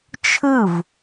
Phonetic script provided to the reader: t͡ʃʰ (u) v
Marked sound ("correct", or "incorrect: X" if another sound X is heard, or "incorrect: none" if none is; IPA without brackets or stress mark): incorrect: ɯ